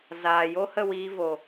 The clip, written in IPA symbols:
z aː˨ j o˦ h ə˦˨ w iː˧ v o˨

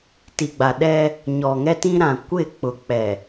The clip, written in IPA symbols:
t i˨ ɡ͡b a˨ ɗ ɛ˦ | ɲ ɔ˨ ŋ ɛ˦ t ĩ˦ ɾ ã˨ kʷ ɪ˦˨ k͡p ʊ˨ k͡p ɛ˨

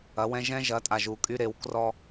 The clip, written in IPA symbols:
ɐ˨˦ w ɛ̃˦ ʒ ɛ̃˦ ʒ ɐ˨˦ tʼ a˨ ʒ u˨ kʼ y˦ ɾ e˨˦ w k r ɔ˦

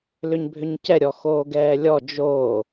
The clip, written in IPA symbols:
l ʏ ɲ bʱ ʏ ɲ c ɛ ɾʲ ɔ x oː ɡ ɛː lʲ ɔ d͡ʒ oː

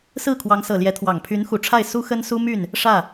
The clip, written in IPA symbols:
s ɹ̩˥˩ kʰ w ɑ˧˥ ŋ s ɤ˨˩ l j ɛ˧˥ t̪ʰ w ɑ˨˩ ŋ pʰ y˧˥ n x u˨˩ ʈ͡ʂʰ a˥˩ ɪ̯ s u˥ x ə˥ n s u˥ m y˥˩ n | ʂ ä˥˩

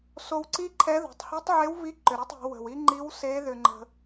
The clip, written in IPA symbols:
s o˧ w ǀ i˥ ǃʰ ɛ˧˥ ð o̤˩˧ tˤ h i˧˥ tˤ ʕ e˧˥ w v i˧˥ ǃ ʏ˩ ɾ e˥ tˤ o̤˩˧ w ə̤˩ w i˥ ŋ͡ǃ i˧˥ w s e˧˥ ð ʏ˧ ŋ͡ǃ ə̤˧

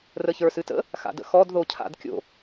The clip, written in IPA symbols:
r ə ç ə˞ s ɨ t ə̰ | x a̰ d ə̰ x ɔ d ð o cʰ a̰ d kʲ o̰

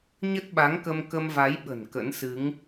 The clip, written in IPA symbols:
ɲ ə˦˥ t̚ ɓ a˨˦ ŋ k ə˧ m k ə˧ m v a˨˦ j ɓ ə̤˨˩ n k ə̰˧˥ n s ɨ˨˦ ŋ

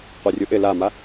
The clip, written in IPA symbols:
qʷ ɛ rʲ u ʔ ɪ l a m a

